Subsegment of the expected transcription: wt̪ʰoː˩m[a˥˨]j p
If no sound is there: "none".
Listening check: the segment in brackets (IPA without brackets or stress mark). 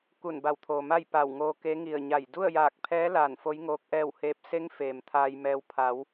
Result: a˥˨